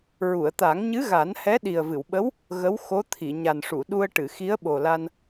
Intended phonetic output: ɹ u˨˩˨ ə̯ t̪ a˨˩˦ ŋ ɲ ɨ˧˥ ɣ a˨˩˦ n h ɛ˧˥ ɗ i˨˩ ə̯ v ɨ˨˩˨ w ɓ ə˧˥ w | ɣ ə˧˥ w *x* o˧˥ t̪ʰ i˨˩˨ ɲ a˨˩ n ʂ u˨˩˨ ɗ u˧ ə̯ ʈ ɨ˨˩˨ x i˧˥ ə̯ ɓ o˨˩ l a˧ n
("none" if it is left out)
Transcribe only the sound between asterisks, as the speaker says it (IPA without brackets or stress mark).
x